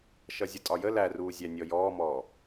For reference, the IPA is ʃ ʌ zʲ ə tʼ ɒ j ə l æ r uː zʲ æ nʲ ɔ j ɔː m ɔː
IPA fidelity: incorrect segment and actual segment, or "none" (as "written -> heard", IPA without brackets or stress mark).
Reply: none